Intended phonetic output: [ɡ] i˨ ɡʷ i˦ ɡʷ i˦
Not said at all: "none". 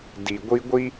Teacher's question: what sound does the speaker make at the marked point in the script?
d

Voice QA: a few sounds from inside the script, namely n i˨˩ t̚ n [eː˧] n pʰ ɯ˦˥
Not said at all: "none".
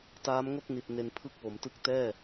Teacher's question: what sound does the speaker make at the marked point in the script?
e˧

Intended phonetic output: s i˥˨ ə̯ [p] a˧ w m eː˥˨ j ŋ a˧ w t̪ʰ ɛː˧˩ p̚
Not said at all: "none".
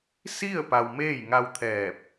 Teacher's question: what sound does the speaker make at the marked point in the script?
p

